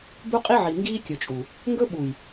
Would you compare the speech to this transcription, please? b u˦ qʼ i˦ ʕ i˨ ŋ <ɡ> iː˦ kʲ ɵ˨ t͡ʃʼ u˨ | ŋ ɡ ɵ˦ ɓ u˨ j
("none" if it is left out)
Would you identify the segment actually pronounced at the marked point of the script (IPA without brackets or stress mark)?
ɡ